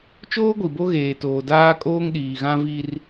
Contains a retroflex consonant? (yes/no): no